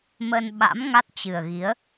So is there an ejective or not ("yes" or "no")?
no